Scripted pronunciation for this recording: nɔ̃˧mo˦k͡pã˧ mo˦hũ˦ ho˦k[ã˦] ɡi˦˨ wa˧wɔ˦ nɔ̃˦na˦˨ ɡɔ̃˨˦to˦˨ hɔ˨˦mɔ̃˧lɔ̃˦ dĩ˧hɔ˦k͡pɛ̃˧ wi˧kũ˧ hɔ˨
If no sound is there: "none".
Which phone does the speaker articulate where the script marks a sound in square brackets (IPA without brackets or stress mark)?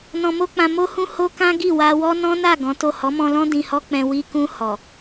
ã˦